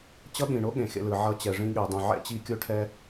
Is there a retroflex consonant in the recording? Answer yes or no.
yes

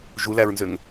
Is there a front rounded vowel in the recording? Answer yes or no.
yes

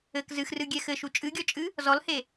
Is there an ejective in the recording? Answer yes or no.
yes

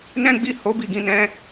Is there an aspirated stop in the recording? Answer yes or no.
no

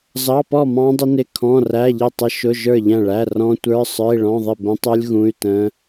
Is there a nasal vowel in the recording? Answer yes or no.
yes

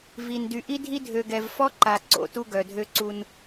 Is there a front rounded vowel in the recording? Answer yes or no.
yes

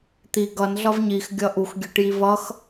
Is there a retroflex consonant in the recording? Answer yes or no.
yes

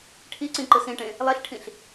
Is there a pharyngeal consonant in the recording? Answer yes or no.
no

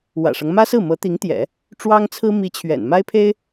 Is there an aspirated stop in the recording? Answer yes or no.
yes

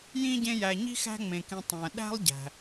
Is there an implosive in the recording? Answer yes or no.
yes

